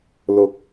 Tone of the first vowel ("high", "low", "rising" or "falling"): rising